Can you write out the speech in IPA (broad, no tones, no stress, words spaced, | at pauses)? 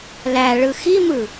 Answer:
læɭɯ ximɯ